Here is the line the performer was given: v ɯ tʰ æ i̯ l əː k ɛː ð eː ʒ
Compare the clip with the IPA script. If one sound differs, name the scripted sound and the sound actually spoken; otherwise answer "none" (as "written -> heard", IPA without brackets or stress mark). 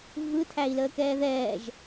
eː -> ɛː